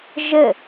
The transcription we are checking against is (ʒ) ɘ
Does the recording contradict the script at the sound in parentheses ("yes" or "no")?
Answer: no